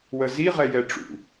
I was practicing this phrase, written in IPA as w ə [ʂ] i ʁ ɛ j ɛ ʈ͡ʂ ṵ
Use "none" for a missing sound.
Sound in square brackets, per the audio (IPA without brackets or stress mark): z